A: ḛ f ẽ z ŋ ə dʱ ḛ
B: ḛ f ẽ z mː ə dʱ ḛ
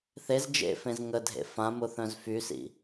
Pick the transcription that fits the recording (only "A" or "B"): A